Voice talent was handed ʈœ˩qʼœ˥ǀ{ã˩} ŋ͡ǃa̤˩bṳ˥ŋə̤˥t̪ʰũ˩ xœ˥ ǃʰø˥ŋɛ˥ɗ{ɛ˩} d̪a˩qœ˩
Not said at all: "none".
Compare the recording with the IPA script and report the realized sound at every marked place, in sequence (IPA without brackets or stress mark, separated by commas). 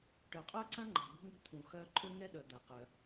ã˥, œ˩